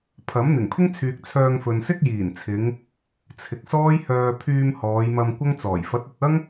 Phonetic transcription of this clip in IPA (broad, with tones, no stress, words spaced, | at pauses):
pʰɐ˨˥m n̪ɪ˨˩ŋpʰɪ˥ŋt͡sʰyː˨k̚ t͡sʰœː˧ŋfɵ˨n sɪ˥k̚jiː˨˩nt͡sʰɪ˨˧ŋ | t͡sʰɪ˨k̚sɔː˥jhœː˧ pʰyː˧m hɔː˨˧jmɐ˧m kʷɐ˥ŋt͡sɔː˨˩j fɐ˨˥t̚ɵ˨t̚ɐ˥ŋ